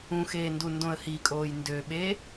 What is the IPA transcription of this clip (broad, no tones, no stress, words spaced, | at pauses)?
ũxeːndu ndõə̯hikʼoːj ndøɓeː